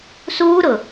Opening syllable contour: high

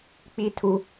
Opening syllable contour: high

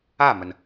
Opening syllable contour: falling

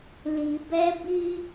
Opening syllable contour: low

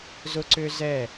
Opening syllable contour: high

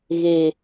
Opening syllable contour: low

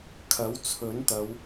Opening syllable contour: rising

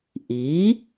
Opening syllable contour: rising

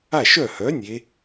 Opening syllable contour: falling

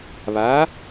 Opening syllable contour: rising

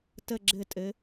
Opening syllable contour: falling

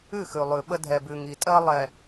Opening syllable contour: falling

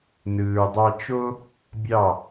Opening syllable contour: low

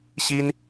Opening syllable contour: high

